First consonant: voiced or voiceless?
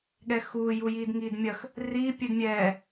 voiced